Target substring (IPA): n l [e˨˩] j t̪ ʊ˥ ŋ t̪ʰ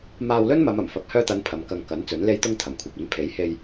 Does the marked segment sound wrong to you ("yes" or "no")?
yes